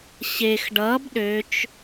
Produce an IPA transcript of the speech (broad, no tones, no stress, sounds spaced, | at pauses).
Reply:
ɕ e x ɖ ʌ b ɗ ø t͡ʃ